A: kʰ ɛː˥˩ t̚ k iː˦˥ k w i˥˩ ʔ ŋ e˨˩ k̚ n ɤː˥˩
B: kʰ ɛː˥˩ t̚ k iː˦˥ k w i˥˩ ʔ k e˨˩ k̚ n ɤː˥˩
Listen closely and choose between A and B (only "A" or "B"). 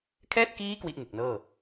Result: A